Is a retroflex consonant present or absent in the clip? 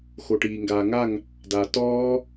present